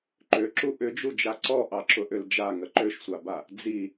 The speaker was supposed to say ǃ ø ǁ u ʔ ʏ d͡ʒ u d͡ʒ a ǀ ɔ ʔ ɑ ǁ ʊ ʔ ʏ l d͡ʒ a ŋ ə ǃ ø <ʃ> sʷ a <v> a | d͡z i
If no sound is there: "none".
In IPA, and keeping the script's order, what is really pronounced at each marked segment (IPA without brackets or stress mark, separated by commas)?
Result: ʃ, b